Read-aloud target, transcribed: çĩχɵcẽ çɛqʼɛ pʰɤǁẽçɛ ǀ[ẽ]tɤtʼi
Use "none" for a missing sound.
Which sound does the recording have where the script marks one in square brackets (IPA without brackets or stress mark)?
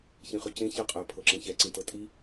ĩ